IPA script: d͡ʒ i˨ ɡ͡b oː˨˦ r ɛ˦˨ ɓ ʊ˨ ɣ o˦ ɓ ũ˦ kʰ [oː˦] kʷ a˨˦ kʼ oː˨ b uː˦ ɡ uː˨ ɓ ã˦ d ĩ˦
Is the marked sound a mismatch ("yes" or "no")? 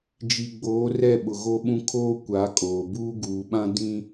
no